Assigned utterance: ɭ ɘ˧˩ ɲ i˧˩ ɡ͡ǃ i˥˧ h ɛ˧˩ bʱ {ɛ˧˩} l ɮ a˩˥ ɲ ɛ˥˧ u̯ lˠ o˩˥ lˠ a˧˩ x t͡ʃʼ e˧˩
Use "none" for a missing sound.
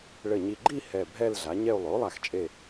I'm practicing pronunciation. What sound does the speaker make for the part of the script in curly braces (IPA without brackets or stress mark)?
ɛ˥˧